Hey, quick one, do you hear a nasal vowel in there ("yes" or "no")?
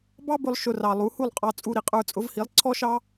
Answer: no